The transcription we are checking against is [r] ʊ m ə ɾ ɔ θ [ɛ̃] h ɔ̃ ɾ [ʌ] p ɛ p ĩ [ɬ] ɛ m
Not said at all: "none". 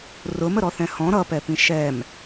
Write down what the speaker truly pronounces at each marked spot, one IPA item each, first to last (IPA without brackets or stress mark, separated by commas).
r, ɛ̃, ʌ, ʃ